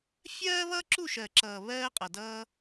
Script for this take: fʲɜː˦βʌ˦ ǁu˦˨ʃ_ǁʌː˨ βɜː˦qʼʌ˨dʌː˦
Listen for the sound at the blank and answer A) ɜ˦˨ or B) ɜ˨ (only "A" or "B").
B